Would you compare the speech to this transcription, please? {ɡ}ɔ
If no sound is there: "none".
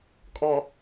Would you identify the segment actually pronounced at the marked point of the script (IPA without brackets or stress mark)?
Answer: kʼ